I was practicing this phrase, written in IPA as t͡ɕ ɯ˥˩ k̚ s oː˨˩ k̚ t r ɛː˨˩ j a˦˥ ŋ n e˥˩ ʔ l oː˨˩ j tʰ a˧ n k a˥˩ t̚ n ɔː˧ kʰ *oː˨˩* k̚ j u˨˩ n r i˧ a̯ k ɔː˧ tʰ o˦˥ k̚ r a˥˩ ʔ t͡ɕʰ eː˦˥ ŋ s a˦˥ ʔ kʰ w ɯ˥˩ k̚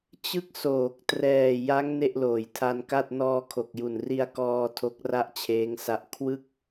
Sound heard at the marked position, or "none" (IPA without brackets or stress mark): o˨˩